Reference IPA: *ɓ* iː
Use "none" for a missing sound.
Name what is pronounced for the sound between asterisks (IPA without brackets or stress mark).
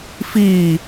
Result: f